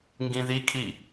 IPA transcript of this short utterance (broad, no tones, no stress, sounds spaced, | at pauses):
ŋ ɡ ĩ ð i kʰ i